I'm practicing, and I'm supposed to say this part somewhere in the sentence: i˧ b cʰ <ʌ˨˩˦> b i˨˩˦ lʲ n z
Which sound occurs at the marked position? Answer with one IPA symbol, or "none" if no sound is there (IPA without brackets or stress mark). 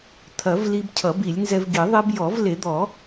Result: ʌ˨˩˦